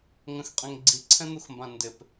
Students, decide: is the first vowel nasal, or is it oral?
nasal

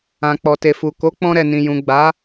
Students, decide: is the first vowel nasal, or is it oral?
nasal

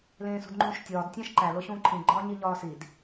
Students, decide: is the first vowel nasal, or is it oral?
nasal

